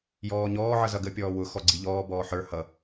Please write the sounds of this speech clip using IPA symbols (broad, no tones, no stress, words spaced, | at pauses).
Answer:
jɔːɲɔː ʕʌzʌɡə pʲɔːwʊ xɔɡ͡ǀiʎɔː bɔːħə˞ hʌ